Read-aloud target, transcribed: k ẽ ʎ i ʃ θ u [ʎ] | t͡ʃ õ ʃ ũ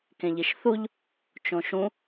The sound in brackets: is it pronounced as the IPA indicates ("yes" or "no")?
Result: yes